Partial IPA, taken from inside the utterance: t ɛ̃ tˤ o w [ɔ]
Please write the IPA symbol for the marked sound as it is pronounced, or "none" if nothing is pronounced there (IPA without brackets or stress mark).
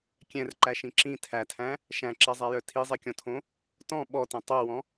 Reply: ɔ̃